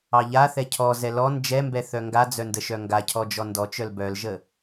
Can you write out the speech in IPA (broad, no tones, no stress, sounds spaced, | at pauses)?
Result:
ɑ ʎ a θ ɛ cʰ ɔ z ɛ l ɔ n d͡ʒ ɛ m b ɛ θ œ ŋ ɡ a d͡z œ n d ə ʃ œ ŋ ɡ a cʰ ɔ d͡ʒ ɔ n d ɔ t͡ʃ œ l b œ l ʒ ə